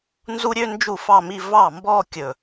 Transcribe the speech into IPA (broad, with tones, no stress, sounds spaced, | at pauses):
n z u˥ ɾʲ ø˥ n d͡ʒ u˥˩ f ɑ˥˧ m i˥˧ v ɑ˥˩ m b ɔ˥˧ kʲ ɵ˥˩